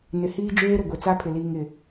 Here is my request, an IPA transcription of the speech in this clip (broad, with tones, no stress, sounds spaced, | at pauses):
n ɪ˨ h iː˦ d͡ʒ eː˦ ɾ ʊ˨ ɡʷ e˨ t͡s a˦ pʰ ɪ˨ l iː˨ ŋ ɪ˨